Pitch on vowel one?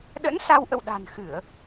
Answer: rising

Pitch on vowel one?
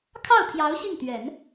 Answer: falling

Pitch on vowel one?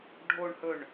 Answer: low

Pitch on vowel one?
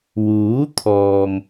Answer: rising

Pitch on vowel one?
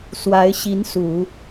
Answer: rising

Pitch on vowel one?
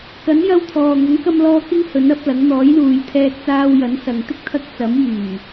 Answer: rising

